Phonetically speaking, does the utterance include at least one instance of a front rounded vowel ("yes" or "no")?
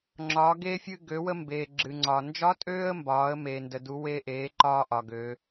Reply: yes